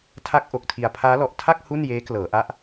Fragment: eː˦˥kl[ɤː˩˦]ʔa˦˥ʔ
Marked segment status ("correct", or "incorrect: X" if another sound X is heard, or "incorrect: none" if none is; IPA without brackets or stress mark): correct